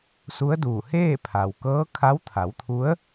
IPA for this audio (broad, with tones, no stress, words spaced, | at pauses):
su˧˥ə̯duː˧˩ heː˥˨pʰa˩w kɤː˧˥kʰa˧˥w t̪ʰa˩˧wt̪ʰu˧˥ə̯